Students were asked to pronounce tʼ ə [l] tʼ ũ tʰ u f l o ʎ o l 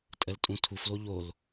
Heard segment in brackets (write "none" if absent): l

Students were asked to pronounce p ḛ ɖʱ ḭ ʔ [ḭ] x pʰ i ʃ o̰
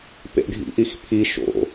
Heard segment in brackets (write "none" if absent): i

